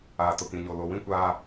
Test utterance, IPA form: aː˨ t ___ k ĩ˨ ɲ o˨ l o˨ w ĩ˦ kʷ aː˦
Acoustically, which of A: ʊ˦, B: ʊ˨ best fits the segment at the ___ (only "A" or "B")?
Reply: B